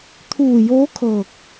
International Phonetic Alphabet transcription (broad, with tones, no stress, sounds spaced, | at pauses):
t̪ʰ uː˧˩ j oː˧˥ kʰ ɤː˧˩ k̚